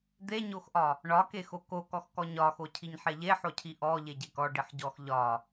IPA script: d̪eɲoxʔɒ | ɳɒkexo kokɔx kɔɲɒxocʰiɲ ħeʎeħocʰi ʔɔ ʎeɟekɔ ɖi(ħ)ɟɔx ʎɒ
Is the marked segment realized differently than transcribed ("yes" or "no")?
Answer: no